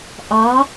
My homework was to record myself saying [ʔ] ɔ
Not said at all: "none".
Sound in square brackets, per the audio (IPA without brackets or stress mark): ʔ